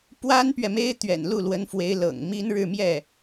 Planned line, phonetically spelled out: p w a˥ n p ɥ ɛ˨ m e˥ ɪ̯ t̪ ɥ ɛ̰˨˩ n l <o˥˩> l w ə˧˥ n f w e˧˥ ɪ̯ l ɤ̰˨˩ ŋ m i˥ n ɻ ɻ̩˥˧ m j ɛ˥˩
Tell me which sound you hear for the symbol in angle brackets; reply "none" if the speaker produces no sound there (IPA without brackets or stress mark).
u˥˩